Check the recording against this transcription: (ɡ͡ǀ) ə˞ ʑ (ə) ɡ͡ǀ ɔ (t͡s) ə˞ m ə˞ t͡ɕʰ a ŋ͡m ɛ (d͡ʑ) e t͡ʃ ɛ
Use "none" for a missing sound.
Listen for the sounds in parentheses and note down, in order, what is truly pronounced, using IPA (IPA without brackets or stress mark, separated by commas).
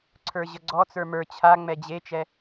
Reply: ǀʰ, ə, t͡s, d͡ʑ